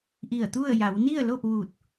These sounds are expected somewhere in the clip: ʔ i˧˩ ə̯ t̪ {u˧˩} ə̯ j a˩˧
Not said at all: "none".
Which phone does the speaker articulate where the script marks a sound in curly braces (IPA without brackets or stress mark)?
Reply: u˥˨